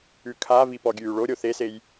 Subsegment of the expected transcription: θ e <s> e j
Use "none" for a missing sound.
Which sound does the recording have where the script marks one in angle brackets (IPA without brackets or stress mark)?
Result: s